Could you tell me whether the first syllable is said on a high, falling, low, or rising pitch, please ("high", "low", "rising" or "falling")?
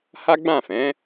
high